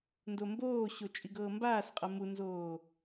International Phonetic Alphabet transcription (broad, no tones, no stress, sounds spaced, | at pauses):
n d o m b oː ɕ o t͡ʃʼ i ɡ ɤː m b aː s qʼ ɤ m u n z oː